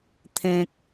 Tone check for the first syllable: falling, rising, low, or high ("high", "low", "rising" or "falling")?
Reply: low